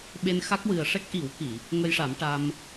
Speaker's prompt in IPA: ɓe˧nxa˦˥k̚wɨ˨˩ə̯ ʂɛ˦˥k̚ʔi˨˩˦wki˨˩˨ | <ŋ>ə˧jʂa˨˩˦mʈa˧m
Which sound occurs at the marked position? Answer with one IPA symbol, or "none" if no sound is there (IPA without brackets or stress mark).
ŋ